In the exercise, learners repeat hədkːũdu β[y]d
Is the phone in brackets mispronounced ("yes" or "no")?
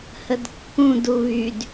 no